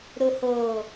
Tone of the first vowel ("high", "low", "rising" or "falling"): low